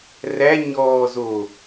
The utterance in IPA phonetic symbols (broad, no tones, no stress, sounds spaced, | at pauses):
r æ ɲ ɔː z o